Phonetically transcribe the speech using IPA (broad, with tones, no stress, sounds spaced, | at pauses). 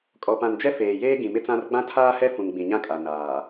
kʼ ɔ˨ p ã˨ n d͡ʒ ɛ˦ f eː˨ j eː˦ ɡ ĩ˨ m ɪ˦ t͡s ã˦ r ɡ͡b ã˦ tʰ aː˦ h ɛ˦ f ũ˨ ŋ ɡ͡b ĩ˨ ɲ ã˦ kʼ a˨ n aː˨